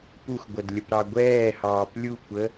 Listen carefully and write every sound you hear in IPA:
p u x ɡʷ ʌ d lʲ ə p ɾ ɑ ɡʷ ɛː h ɑː p lʲ u kʷ ə

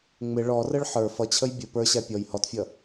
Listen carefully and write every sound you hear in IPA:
ŋ͡m ɪ ɭ ɔ r ə ɭ ħ ə˞ f ʌ t͡ɕʰ ə j bʲ ə p ə˞ ɕ æ pʲ ɔ j h ɔ t fʲ ʌ

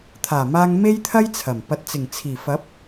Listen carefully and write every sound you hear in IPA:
t̪ʰ aː˨˩ m aː˧ ŋ m e˥ j t̪ʰ ɐ˥ j t͡sʰ ɐ˨˩ m p ɐ˨ t̚ t͡s ɪ˨˩ ŋ t͡sʰ iː˨˩ f ɐ˨˥ p̚

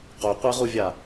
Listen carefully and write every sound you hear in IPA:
q o qʷ ɛ ʁ u vʲ a

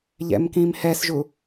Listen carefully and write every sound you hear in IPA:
ʎ ɛ̰ m k ĩ m h ɛ s ʒ u

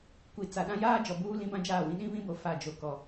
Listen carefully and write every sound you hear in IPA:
kʷ i˨ t͡s a˨ ɗ ã˦ j aː˦ d͡ʒ ɔ˨ b uː˦ l ĩ˦ b ã˦ d͡ʒ aː˦˨ w ĩ˦ ɗ ĩ˦ β ĩ˦ b o˨ f a˦˨ d͡ʒ o˨ k ɔ˨

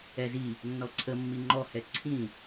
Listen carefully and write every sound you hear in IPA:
ɛ z i | nː ɔ ǀʰ ə mː i ŋ͡ǃ ɔ h ɛ ǀʰ ĩ

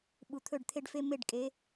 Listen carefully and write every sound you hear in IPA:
ɓ u˨ t̪ʰ ɵ˦˨ ɖ t̪ʰ e˦ ɖ f e˦ m e˦˨ ɖ kʼ e˨˦

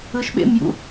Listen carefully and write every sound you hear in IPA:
ɯ ʃ ɓ ḛ m j ṵ

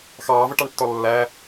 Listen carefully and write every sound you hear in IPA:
x ɑː v ʌ ʈ ɑ ɳ tː ɔ lː æ

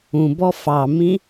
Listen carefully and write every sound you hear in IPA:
ũ b ɔ f ɑ m ĩ

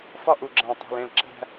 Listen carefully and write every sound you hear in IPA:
f ɒ˦ ʔ u˨ ɡ͡ǁ æ̃˨ tˤ æ̤˨ l ẽ˨ l ǁ æ̤˦

